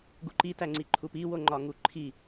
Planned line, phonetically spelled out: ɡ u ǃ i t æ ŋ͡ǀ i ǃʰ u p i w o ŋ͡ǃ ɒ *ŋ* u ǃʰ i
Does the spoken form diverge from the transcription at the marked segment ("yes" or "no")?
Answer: no